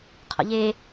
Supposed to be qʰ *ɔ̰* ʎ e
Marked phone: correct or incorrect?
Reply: correct